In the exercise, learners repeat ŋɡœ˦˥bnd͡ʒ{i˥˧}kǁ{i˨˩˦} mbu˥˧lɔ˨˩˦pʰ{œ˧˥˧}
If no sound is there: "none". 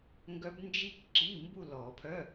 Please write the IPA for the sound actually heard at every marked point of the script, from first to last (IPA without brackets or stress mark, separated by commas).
i˥˧, i˧˥˧, œ˧˥˧